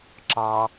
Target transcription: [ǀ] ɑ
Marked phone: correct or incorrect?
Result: incorrect